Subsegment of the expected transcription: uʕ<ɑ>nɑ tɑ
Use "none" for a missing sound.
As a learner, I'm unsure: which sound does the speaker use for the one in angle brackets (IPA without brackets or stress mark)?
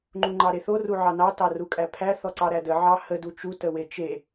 ɑ